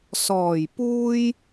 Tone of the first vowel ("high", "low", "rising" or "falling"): low